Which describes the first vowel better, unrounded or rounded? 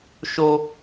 rounded